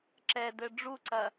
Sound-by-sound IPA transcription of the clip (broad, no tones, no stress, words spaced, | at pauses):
ǁɛdɘ ɖ͡ʐuǀɐ